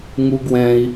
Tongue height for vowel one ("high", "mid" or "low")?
high